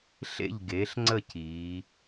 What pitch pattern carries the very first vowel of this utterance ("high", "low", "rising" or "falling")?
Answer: falling